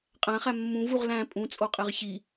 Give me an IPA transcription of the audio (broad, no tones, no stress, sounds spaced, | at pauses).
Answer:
qʼ æ̃ χ æ mː ũ v u ʁ l æ̃ pʼ ũ t͡sʼ o qʼ e ʁ ç i